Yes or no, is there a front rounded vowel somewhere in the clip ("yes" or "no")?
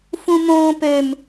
yes